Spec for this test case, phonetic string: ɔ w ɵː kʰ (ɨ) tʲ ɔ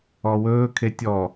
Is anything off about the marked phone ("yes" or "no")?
yes